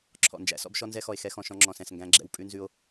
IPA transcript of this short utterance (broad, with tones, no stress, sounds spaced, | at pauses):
ǁʰ ɔ̰˨ n d͡ʒ æ̰˦ s ɔ̰˦ b ʃ ɔ˦ n z ɛ˦ x ɔ˨ e̯ x ɛ˦ x ɔ̃˨ ʃ ɔ̃˦ ŋ͡ǁ ɔ̃˨ s ɛ̃˨ s ŋ ɡ æ̃˦ ɡ͡ǁ ɛ̰˦ w pʼ ʉ˦ n z ʉ˦ o̯